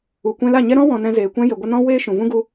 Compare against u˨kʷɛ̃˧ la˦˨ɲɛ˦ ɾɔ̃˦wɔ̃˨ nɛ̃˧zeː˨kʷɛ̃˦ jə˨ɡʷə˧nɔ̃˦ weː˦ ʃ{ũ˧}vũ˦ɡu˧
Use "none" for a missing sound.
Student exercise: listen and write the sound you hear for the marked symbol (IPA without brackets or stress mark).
ũ˨